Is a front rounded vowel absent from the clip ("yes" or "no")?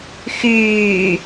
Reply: no